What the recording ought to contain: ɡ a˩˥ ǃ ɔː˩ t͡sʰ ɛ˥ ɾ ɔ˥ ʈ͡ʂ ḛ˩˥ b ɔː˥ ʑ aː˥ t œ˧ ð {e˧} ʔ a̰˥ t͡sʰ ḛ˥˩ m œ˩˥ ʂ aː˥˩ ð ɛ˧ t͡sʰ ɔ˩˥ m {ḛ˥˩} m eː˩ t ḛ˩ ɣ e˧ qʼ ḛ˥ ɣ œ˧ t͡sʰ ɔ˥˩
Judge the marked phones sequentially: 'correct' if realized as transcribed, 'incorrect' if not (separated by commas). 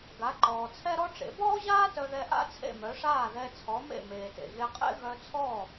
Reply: incorrect, correct